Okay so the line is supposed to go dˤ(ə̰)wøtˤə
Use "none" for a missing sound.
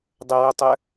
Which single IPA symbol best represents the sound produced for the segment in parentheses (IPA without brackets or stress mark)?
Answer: ə